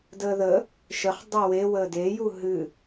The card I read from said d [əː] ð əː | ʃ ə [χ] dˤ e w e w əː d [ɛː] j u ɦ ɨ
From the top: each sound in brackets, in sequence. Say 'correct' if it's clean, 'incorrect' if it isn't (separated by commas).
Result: correct, correct, incorrect